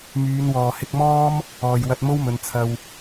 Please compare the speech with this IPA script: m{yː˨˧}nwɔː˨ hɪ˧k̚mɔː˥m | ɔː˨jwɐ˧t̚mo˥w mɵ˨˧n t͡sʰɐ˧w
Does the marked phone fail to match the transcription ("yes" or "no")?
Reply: no